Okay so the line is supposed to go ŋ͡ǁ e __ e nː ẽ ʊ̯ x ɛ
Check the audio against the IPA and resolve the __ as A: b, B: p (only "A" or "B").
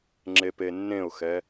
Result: B